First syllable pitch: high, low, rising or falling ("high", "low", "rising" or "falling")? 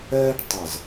high